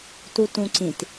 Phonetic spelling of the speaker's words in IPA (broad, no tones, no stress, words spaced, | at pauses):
tutũǀĩt